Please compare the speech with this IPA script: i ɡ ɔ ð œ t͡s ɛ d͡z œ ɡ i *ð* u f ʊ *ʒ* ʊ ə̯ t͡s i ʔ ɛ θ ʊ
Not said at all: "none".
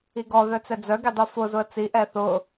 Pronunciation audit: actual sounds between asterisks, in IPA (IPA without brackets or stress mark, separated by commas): dˤ, z